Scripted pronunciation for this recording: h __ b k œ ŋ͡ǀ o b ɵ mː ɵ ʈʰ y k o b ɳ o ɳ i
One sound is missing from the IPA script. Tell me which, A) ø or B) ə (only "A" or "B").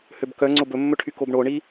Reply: A